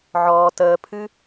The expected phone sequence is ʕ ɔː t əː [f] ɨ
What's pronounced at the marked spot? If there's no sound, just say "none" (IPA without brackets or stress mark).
pʰ